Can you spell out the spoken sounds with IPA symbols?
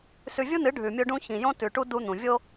s ʉ˨ vʲ u˦ n ɨ˨˦ ɖʱ ʉ˨ mʲ o˦ ɖ ũ˦ ç ĩ˨ j õ˦ t ʉ˨ ʈ u˦ d u˦ n̪ ũ˨ vʲ o˦

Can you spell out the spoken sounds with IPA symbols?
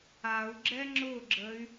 a u̯ ɡ͡ǁ ɛ ŋ͡ǁ ʊ ɡ͡ǁ ə y̯

